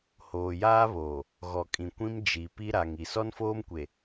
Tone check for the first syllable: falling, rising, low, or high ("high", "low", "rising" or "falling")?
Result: low